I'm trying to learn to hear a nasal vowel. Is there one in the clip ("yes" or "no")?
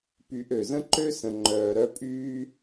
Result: yes